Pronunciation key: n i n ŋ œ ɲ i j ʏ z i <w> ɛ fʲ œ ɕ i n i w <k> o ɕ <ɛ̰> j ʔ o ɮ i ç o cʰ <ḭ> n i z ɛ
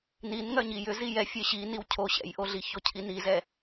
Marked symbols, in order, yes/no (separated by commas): no, no, yes, no